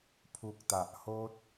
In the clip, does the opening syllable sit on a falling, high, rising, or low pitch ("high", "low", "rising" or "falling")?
low